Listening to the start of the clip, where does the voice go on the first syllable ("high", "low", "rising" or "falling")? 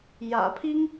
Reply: low